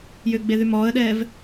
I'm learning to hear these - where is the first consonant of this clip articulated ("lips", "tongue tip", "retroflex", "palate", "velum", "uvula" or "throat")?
palate